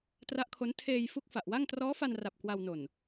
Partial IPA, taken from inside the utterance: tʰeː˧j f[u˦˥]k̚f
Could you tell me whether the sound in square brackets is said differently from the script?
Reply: no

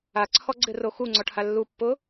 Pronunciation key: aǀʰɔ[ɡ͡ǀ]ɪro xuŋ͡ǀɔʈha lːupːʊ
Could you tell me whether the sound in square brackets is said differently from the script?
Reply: no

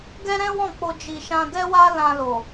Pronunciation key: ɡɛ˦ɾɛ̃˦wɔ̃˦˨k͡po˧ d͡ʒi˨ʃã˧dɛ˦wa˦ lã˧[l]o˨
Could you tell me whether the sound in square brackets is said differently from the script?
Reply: no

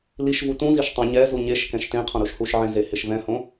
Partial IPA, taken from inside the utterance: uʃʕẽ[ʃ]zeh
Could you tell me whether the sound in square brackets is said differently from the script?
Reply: yes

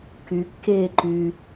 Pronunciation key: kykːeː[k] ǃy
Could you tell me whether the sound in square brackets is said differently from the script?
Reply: yes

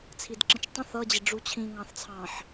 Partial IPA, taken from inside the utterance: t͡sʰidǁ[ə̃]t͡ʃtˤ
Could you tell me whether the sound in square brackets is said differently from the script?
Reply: no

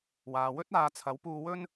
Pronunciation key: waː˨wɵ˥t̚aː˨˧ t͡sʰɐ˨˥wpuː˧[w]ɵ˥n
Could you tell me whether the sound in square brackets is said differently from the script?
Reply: no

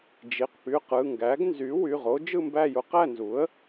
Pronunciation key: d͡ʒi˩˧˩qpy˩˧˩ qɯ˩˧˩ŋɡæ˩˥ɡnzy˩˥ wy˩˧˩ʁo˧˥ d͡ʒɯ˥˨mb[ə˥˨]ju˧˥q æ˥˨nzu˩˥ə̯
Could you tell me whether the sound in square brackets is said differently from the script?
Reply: yes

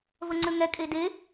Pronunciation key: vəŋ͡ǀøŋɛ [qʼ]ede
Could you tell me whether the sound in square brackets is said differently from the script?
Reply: yes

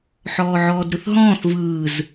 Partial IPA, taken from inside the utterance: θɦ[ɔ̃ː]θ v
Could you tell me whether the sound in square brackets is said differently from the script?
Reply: no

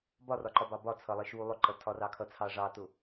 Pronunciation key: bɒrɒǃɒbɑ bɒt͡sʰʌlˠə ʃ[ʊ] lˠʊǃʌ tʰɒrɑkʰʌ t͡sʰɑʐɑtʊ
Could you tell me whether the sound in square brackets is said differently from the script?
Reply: yes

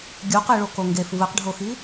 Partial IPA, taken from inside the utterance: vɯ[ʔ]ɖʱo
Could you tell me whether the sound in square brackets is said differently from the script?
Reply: yes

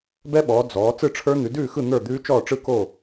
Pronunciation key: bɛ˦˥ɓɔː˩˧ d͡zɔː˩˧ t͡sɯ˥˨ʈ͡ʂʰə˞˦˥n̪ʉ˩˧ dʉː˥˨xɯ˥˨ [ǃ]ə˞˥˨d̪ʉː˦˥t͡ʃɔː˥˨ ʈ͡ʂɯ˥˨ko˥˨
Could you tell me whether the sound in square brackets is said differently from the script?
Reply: yes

